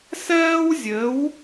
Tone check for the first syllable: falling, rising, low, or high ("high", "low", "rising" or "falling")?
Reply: high